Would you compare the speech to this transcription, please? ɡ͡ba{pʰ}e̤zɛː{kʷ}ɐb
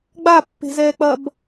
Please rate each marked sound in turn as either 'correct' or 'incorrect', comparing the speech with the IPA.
incorrect, incorrect

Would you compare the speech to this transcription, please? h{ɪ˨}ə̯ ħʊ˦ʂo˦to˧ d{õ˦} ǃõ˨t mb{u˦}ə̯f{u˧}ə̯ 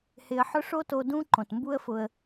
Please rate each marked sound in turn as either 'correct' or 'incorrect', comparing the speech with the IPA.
incorrect, incorrect, correct, incorrect

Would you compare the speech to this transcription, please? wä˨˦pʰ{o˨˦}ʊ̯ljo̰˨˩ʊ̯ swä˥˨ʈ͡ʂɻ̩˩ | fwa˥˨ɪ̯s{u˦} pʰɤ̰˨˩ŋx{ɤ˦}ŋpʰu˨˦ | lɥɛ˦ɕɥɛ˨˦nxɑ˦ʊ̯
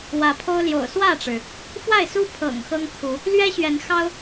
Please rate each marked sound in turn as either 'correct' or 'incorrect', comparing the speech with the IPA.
incorrect, correct, correct

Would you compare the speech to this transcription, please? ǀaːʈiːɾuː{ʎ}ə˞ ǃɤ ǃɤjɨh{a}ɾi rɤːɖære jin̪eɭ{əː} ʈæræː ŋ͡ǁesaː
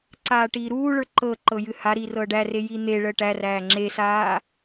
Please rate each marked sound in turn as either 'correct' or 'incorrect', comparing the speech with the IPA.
incorrect, correct, correct

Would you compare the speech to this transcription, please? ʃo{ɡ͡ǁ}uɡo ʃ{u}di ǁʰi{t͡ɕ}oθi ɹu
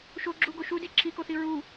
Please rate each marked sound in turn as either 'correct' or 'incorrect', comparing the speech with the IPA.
correct, correct, incorrect

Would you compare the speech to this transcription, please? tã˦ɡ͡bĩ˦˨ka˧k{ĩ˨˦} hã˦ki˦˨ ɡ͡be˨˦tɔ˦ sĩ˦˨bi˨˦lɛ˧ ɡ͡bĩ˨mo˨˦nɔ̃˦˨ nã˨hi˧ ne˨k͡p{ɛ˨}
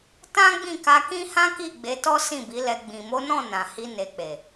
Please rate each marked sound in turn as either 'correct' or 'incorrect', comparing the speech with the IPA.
incorrect, incorrect

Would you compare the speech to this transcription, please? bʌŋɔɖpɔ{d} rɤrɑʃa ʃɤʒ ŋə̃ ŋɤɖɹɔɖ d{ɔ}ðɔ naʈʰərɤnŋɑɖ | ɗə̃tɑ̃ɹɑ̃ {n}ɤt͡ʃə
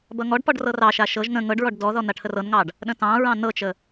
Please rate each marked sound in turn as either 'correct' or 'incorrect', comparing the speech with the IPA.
incorrect, correct, correct

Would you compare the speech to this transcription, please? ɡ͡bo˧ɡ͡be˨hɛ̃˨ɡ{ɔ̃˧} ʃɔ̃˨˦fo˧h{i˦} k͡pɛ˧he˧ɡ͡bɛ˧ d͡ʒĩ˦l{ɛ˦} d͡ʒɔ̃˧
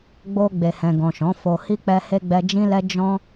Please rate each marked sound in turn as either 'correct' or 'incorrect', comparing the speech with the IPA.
incorrect, correct, correct

